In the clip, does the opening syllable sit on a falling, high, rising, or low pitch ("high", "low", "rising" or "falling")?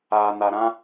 low